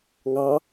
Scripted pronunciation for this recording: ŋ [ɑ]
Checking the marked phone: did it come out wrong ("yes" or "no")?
no